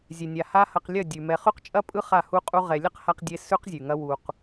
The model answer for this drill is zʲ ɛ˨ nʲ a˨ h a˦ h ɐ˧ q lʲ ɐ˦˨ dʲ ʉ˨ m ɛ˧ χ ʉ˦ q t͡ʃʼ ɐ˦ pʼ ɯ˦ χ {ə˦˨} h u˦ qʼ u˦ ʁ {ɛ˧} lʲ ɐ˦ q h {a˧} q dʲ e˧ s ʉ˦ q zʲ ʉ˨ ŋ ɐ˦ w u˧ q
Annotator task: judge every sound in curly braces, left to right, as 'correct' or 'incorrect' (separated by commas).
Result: incorrect, correct, correct